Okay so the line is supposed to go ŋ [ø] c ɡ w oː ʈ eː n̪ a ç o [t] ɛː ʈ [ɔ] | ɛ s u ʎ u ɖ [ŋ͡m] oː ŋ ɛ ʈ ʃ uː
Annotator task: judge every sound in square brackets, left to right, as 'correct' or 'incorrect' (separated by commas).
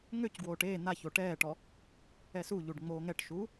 correct, incorrect, correct, correct